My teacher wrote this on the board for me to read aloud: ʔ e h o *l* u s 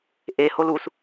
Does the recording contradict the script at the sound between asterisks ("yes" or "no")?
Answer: no